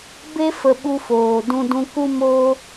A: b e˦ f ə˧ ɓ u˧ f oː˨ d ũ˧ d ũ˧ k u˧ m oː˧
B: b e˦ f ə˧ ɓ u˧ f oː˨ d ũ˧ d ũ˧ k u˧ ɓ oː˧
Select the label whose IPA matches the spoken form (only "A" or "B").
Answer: A